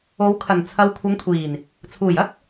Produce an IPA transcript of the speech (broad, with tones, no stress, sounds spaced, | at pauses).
o˨˧ w kʰ ɐ˨˩ n t͡sʰ ɐ˨˧ w kʷʰ ɐ˨˧ ŋ kʷʰ iː˨˩ n | t͡sʰ uː˨˩ j ɐ˥ k̚